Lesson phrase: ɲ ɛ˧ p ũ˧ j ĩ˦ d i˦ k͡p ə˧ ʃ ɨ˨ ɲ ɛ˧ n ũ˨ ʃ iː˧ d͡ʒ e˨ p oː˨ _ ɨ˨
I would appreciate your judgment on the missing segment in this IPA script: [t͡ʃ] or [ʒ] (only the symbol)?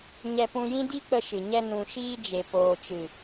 t͡ʃ